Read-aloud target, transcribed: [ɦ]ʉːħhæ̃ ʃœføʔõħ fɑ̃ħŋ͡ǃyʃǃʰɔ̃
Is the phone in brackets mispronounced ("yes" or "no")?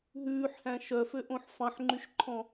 no